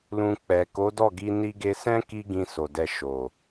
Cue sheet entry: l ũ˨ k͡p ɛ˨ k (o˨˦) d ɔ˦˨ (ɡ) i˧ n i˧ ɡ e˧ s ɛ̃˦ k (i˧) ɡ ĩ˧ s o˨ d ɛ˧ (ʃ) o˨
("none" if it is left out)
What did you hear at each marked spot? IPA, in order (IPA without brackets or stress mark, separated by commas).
o˨˦, ɡ, i˦, ʃ